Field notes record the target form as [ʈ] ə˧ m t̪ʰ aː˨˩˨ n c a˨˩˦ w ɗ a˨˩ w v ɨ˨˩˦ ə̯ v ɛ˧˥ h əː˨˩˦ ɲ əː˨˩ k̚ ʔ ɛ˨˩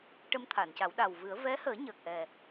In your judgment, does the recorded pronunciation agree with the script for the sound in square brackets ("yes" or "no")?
yes